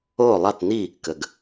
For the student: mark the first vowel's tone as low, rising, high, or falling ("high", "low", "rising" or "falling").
falling